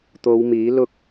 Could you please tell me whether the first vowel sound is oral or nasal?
oral